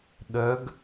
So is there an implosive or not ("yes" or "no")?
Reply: yes